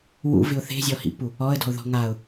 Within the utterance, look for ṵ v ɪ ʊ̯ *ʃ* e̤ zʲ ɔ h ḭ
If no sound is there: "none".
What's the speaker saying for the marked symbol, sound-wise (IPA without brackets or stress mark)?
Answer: θ